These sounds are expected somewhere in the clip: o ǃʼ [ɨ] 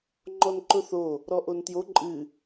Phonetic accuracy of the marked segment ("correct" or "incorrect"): correct